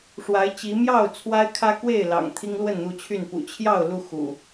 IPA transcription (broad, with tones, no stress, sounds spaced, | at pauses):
ʂ w a˨˦ ɪ̯ t͡ɕ i˨˦ m j ɑ˥˨ ʊ̯ t͡sʰ w a˦ ɪ̯ kʰ ä˦ k w e˥˨ ɪ̯ l ɑ̰˨˩ ŋ t̪ʰ i˦ ŋ l w ə˥˨ n n̪ u˥˨ t͡ɕʰ y˥˨ n p ṵ˨˩ t͡ɕʰ j ɑ˥˨ ʊ̯ l u˥˨ x ṵ˨˩